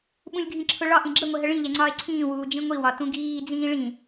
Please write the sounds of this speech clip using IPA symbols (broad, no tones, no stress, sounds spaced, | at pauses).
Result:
ɓ ũ lʲ ɡʱ ĩ ǁʰ ʊ ɭ ɒ ʔ ĩ ɡ͡ǁ ə ŋʷ ɛ ɦ ə ɭ ĩ ʎ ɛ ŋ͡ǀ ɒː e̯ ǀʰ ĩː w uː d͡ʒ ĩ ŋʷ i w ɒ t ũ ɡ iː d͡z ĩː ɭ ĩ